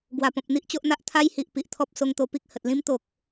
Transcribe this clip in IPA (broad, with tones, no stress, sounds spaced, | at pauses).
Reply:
ɡ w a˨˩ p ɔ̃˨ p̚ n̪ i˦ ʔ t͡ɕ o˦ ʔ n̪ a˦ ʔ t̪ʰ a˦ j h i˨ ʔ p i˨ ʔ t̪ʰ ɔ˦ p̚ s o˧ ŋ t̪ o˧ p i˦ k̚ h ə˨ t̚ l ĩ˦ m t̪ o˨ k̚